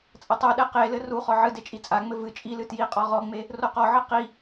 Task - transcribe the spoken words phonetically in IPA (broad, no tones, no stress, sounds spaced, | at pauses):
t͡sʼ ɐ tˤ u ɗ ɛ q e l ɘ r u χ ɔ ʕ ɨ d e t͡ʃʼ i t͡sʼ a ŋ͡m ɘ v ɨ t͡ʃʼ i l ɨ t j i qʼ ɔ ʁ ɔ ŋ͡m e | r o q ɔ ʕ ɨ q i